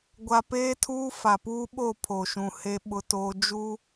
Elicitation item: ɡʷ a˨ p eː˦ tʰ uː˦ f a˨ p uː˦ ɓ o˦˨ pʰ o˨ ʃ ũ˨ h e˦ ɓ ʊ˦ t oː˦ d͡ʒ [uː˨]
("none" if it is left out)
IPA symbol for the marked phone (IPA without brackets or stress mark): uː˦